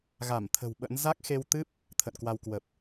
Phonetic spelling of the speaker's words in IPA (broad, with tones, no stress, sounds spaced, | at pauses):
ɣ a˧˩ m t̪ʰ ə̤˨˩ w ɓ ə̰˧˥ n z a˦˥ k̚ x e˧ w t̪ ɨ˦˥ p̚ | t̪ʰ ə̰˧˨ n k w a˧ w k w ə˨˩ p̚